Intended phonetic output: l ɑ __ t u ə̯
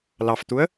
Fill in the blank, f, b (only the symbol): f